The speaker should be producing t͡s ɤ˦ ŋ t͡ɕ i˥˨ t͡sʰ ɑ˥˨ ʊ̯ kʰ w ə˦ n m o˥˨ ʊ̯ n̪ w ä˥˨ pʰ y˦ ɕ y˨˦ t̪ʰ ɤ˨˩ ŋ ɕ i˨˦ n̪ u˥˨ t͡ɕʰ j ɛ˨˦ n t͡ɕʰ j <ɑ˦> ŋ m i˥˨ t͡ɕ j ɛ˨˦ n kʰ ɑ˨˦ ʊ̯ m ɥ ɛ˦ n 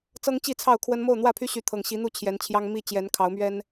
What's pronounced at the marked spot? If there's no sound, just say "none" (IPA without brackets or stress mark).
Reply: ɑ˦